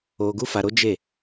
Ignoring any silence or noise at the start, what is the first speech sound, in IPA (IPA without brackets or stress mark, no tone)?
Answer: o